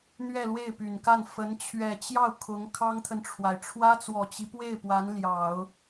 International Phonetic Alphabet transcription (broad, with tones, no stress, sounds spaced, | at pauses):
n̪ ɥ ɛ˥˧ l w e˥˩ ɪ̯ p y˨˩ n k a˥˩ n f ə˧˥ n t͡ɕʰ ɥ ɛ˨˩ t͡ɕ j ɑ˥˩ ʊ̯ kʰ ʊ˧˥ ŋ kʰ ɑ˥ ŋ t̪ʰ ə˨ n ʈ͡ʂʰ w a˩ ɪ̯ ʈ͡ʂʰ w ä˥ t͡s w ɔ˨˩ t͡ɕ i˦ p w e˥˩ ɪ̯ p w a˧˥ n l j ɑ˨˩˦ ʊ̯